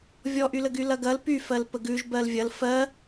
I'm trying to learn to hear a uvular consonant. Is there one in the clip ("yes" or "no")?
no